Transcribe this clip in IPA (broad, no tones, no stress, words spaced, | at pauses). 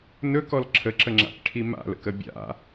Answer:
nɵkɔl ǁʰəǁəŋ͡ǁa̰kʈʰi ma̰lə̰kə bʲa̰